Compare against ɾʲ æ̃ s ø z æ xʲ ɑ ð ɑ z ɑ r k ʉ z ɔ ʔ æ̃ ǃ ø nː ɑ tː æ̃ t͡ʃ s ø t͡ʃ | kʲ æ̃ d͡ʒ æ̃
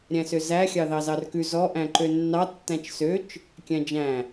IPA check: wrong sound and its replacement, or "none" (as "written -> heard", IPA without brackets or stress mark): none